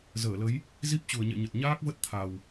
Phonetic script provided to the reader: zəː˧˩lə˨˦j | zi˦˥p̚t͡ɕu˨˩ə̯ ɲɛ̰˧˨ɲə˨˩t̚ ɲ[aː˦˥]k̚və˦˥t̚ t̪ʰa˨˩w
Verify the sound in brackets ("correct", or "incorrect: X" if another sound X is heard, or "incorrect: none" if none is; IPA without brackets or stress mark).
correct